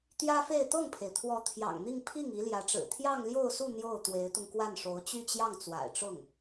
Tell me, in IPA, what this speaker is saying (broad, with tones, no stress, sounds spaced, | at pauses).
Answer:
t̪ j ä˥ f e˥˧ ɪ̯ t̪ ɤ˥˩ ŋ pʰ e˩ ɪ̯ t̪ʰ w ɔ˧˥ t̪ʰ j ɑ̰˨˩ ŋ n̪ i˥˧ ŋ pʰ i˥˩ ŋ i˧˥ l j ä˧˥ ʈ͡ʂ ɻ̩˨˩ t̪ʰ j ɑ˥˧ ŋ l j o˥˧ ʊ̯ s u˥˧ n̪ j o˥˩ ʊ̯ t̪ w e˧˥ ɪ̯ t̪ ʊ˧ ŋ k w a˥˩ n ʂ o˧˥ ʊ̯ t͡ɕ y˥˧ t͡ɕ j ɑ˥˩ ŋ t͡s w a̰˨˩ ɪ̯ ʈ͡ʂ ʊ˥˩ ŋ